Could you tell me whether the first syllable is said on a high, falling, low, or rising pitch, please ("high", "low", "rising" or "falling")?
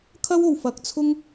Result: high